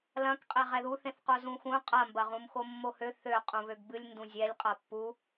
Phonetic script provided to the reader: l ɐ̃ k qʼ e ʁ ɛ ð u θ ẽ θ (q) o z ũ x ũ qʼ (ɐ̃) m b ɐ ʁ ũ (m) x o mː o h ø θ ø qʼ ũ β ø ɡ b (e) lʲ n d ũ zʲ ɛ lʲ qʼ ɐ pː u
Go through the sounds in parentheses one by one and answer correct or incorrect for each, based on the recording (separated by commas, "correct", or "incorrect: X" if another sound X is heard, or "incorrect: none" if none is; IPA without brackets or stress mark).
correct, incorrect: ɐ, correct, incorrect: ɨ